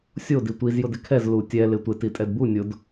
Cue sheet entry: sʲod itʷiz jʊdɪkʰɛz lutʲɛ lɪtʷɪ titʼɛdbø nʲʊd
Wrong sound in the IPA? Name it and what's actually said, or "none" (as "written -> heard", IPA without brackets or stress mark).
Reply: ø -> u